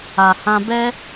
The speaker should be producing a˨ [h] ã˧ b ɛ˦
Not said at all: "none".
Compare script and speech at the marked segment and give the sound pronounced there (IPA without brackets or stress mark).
h